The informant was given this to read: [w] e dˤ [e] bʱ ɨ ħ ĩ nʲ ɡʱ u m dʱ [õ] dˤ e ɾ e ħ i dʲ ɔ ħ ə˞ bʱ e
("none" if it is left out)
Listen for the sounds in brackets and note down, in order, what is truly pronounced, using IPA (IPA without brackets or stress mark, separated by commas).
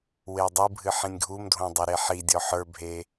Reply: w, ɨ, õ